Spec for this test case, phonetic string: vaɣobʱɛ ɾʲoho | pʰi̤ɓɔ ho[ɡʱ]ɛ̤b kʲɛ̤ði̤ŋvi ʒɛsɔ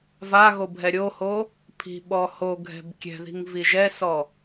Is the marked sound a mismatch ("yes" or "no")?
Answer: no